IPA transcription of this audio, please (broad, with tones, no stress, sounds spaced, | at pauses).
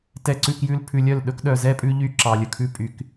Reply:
t ɛ˨ ǀ ʉ˨ k j ʉ˨ l pʰ ʉ˨ lʲ œ˦˨ l ɗ ɵ˦ k ɗ œ˨ z ɛ˦ pʼ ʉ˦ ʎ y˦ ǁ ɑ˨ lʲ ɵ˨ kʰ ʉ˦ pʼ y˦ k